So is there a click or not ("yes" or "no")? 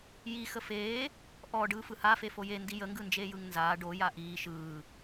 no